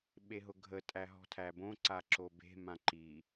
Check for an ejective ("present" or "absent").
present